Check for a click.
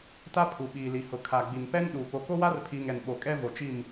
absent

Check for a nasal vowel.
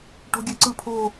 absent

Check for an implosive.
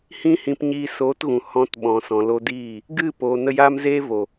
present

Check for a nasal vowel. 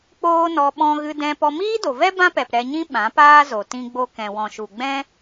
present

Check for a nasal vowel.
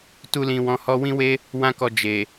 present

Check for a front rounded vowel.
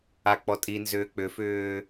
present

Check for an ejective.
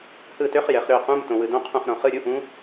absent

